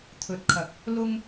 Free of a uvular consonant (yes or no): yes